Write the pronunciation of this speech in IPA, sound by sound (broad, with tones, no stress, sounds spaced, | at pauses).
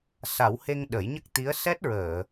s a˨˩˦ w h e˧ ŋ ɗ ə˨˩˦ j ɲ ə˦˥ k̚ t̪ i˧˥ ə̯ s ɛ˦˥ t̚ ɹ əː˨˩˨